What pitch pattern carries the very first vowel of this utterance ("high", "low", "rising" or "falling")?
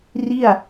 falling